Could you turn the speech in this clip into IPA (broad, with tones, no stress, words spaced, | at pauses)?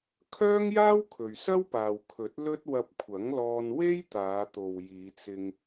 kʰœː˥ŋjaː˥w kʰɵ˨ɥsɐ˥wpaː˨wkʰɵ˨˥t̚ lɵ˥t̚ wɐ˧p̚kʷʰɐ˨˥ŋlɔː˧n we˥jt̪aː˨˧t̪o˨w jiː˨˧t͡sɪ˧ŋ